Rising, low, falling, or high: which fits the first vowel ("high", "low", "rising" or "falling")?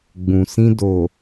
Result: low